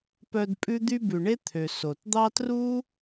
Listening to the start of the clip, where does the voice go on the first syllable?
low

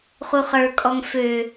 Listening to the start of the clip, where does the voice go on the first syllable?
low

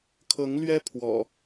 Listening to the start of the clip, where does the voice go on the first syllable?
rising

